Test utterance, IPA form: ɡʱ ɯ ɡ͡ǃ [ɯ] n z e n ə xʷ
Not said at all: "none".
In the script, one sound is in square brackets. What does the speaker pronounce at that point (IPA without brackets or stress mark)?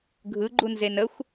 u